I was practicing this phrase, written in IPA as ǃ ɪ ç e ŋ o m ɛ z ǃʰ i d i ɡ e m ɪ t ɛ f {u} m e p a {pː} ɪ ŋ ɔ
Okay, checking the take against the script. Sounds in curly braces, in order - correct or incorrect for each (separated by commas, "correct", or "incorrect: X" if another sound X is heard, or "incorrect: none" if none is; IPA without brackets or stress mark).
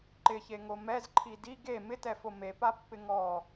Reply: incorrect: o, correct